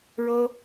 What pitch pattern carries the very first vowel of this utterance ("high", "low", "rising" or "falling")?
high